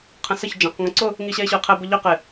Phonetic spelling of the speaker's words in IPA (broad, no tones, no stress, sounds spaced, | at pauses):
qʰ ə̃ s ə ç d͡ʒ ã q ŋ ə̃ ǀ ʊ | ŋ i ɕ ɛ e̯ ɕ ʊ e̯ qʰ ɛ b ʊ ʎ œ q ɪ